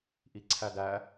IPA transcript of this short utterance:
ʔiǀʰædæ

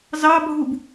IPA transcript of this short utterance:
zɑbʱub

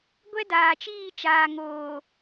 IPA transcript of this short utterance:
ɡʷɛ˦daː˨t͡ʃiː˦˨t͡ʃaː˨ ŋoː˨

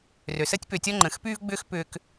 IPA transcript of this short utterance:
rø˨səː˦tʲpø˨tʲɔ˦ ŋ͡ǃə̃ː˨xpyː˦v ɡ͡bʏː˦xpʏː˧k

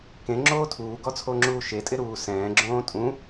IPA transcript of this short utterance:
kẽ ŋ͡ǁoːtʰuːɡɔ t͡sʰoŋ͡ǁuːʃetʼɪ ɾuːsɛ̃ːɡ͡ǁõː tʼũ

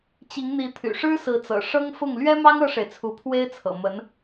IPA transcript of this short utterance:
t͡ɕi˧˥ŋn̪i˧˥ t̪ʰy̰˨˩ʂɻ̩˥sɹ̩˧˥t͡sɤ̰˨˩ ʂɤ˥ŋfʊ˥˩ŋ lɥɛ˥mɑ˥ŋ ɤ˥ʂe˨ɪ̯t͡sʰu˧˥ pʰwe˥ɪ̯t͡sʰɤ̰˨˩mə˧˥n

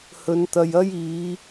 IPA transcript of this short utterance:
hɵ˨˧nt̪ɐ˨jɐ˥jiː˨˧

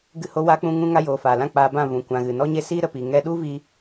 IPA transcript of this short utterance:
ɡɨ˧ho˧wa˧k͡pũ˧ ŋũ˧ŋa˧joː˨ faː˨lã˦˨k͡paː˧bã˦˨ vũ˨kʷã˨ ɣɨ˨nɔ˦ɲe˦ siː˦ ɾə˧pi˨ ŋɛ˧ɗu˦vi˧

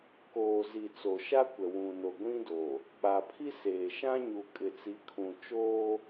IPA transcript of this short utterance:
koː˨ zi˨ t͡so˨ʃa˦kʷɛ˨ wũ˨no˨ ɡʷĩ˦do˨ | k͡pa˨pʰi˦seː˨ʃã˦ ɲu˨ kʼɪ˨t͡si˨˦kʰũ˨t͡ʃoː˦

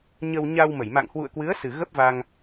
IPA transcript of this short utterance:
ɲə˧wɲa˧w mə˧˩jma̰˧˨ŋhwṵ˧˨ə̯ kwɨ˨˦ə̯sɨ˨˩ ɣə˦˥p̚va˧ŋ

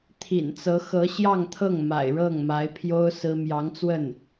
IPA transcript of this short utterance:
t̪ʰḭ˨˩nt͡sɤ˧˥ xɤ˧˥ɕjɑ˥˧ŋt̪ʰɤ˥˩ŋ ma̰˨˩ɪ̯ɻɤ˥˩ŋma˧˥ɪ̯pʰjo˥ʊ̯ sɹ̩˥ mjɑ˧˥ŋt͡swə˥˩n

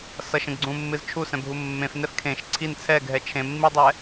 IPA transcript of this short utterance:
sʌʃə̃ɡɡ͡ǀũmːɨz t͡ʃʰusɛ̃bʱu mːẽfnɛf kʰẽʃ ǀʰin t͡sʰɛɡʱɛ t͡ʃʰẽmːidˤɛ

